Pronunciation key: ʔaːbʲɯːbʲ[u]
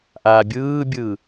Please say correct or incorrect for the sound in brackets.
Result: incorrect: ɯ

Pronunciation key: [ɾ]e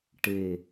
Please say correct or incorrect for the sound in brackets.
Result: incorrect: ʈ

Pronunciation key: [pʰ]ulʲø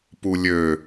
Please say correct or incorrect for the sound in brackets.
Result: incorrect: p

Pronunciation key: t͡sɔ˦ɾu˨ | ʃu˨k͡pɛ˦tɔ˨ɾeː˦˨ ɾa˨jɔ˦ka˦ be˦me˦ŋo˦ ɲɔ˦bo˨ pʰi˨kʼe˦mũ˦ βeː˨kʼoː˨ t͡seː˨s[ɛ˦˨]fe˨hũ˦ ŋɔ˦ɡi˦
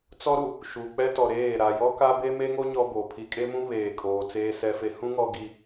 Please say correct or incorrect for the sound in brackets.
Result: incorrect: ɛ˨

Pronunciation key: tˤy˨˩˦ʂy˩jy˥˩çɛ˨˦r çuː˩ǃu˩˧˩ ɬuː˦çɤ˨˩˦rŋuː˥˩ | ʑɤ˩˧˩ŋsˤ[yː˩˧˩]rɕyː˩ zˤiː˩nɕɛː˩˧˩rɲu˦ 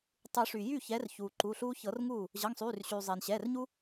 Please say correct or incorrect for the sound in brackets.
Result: correct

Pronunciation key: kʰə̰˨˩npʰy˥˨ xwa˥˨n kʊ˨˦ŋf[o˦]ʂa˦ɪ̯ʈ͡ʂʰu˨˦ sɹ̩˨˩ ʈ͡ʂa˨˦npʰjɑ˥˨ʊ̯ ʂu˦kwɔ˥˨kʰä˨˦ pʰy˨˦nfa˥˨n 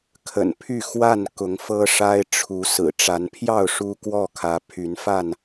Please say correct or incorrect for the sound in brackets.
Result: incorrect: ɤ˦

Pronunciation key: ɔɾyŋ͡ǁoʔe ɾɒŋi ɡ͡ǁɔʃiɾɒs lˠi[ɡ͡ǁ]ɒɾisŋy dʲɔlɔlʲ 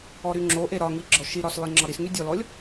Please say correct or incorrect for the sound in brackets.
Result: incorrect: ŋ͡ǁ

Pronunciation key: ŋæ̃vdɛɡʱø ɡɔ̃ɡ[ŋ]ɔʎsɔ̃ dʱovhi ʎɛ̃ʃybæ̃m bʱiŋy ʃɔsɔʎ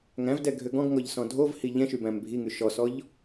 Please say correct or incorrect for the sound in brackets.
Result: correct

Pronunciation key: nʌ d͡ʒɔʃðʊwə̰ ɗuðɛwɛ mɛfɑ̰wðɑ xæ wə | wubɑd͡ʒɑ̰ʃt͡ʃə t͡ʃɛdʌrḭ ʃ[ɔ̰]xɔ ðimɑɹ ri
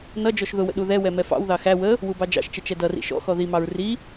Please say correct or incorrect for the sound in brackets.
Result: correct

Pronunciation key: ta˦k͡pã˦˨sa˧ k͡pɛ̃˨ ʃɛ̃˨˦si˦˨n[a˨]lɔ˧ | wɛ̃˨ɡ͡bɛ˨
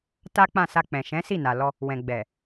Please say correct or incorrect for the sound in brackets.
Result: correct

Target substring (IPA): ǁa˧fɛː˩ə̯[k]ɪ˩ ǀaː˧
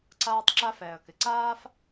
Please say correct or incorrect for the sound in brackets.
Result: correct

